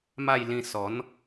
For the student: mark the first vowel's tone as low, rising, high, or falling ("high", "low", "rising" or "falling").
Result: falling